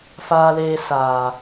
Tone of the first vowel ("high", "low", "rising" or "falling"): high